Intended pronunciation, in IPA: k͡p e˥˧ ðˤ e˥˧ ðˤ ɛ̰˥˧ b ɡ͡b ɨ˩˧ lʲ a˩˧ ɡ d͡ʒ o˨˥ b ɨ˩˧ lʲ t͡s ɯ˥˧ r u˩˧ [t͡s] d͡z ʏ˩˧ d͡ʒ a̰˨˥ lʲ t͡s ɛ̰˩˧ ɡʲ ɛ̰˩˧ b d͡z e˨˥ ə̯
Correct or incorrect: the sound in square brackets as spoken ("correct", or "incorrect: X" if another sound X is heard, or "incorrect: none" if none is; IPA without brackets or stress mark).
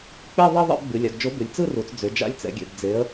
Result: correct